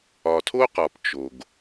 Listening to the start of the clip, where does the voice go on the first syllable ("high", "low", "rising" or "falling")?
low